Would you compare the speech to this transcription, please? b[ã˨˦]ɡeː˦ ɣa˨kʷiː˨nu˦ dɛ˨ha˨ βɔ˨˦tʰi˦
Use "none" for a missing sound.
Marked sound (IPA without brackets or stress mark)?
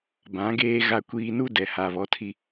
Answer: ã˨˦